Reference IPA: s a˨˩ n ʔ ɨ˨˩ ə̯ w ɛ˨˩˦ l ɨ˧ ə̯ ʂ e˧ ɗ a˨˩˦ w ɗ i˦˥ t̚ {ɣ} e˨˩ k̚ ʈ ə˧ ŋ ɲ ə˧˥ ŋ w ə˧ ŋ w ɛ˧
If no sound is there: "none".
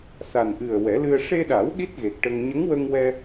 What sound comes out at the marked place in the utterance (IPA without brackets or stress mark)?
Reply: ɣ